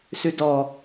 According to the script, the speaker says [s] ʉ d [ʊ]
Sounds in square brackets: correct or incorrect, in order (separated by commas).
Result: correct, incorrect